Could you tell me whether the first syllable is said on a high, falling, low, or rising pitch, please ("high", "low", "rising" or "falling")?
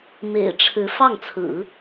low